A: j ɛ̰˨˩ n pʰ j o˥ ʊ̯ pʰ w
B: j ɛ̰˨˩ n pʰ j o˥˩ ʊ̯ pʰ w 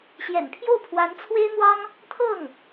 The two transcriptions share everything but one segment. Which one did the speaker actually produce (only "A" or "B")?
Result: B